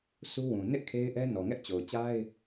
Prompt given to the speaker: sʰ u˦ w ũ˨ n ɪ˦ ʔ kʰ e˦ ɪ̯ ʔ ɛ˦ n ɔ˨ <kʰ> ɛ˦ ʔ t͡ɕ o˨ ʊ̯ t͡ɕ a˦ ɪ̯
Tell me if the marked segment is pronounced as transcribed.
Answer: no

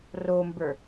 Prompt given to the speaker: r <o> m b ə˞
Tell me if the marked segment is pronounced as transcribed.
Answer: yes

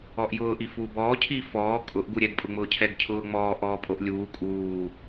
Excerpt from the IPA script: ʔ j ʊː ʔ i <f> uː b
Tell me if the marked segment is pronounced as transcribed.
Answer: yes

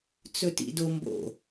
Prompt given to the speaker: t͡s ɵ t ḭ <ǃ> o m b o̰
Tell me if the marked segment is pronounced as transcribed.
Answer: no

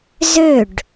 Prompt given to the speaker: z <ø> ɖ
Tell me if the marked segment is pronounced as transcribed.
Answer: yes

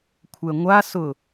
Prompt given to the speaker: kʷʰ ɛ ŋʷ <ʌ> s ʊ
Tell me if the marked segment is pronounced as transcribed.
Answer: no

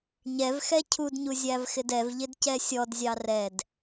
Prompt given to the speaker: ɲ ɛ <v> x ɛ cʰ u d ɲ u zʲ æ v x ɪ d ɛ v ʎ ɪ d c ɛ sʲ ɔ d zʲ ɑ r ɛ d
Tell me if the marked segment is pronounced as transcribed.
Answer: yes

